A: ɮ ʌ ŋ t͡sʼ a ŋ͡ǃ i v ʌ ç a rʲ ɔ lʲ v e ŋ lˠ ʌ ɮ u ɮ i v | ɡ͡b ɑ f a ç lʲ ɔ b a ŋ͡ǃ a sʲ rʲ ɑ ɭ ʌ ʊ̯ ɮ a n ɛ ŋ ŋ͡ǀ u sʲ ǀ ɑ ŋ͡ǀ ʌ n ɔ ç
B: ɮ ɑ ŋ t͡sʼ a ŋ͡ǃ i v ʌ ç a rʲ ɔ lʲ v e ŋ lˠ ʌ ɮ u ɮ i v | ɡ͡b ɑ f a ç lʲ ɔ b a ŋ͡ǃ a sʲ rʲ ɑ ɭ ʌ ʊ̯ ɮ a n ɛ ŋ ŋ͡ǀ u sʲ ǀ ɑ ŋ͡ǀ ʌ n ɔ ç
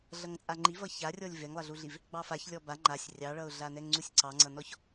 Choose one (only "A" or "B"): A